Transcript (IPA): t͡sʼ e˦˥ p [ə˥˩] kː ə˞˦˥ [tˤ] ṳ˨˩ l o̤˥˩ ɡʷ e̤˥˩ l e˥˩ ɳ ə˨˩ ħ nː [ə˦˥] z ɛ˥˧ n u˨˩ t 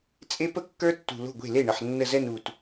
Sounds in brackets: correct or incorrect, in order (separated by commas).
correct, incorrect, incorrect